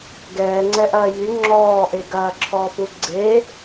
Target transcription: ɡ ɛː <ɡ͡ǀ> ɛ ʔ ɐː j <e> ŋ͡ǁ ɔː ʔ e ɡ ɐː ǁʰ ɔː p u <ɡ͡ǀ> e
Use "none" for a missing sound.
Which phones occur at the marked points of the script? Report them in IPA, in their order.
ŋ͡ǀ, y, ɡ͡ǀ

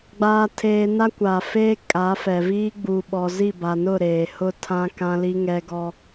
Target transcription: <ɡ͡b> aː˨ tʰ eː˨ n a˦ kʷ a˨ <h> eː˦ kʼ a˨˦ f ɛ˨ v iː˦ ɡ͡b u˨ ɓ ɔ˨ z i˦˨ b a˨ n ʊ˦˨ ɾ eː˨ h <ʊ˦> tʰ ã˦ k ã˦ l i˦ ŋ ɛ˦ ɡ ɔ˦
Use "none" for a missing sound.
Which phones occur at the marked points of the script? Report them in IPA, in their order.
ɡ͡b, f, ʊ˦

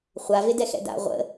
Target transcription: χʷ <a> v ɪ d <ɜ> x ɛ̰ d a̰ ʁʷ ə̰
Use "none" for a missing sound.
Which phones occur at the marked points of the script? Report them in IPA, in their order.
a, ɛ

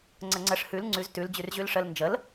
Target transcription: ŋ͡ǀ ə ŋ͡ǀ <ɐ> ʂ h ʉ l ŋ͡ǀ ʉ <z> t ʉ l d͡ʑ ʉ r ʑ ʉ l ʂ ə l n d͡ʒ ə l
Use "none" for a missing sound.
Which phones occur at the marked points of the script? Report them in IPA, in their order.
ə, z

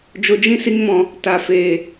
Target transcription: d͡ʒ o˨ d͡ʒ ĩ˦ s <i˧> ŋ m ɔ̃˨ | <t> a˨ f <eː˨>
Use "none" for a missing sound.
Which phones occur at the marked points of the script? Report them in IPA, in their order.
i˧, t, eː˨

